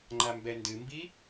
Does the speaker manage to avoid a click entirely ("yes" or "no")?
no